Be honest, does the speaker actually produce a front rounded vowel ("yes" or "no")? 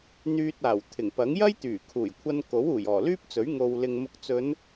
yes